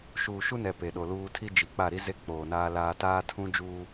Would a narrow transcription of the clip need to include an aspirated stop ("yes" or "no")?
yes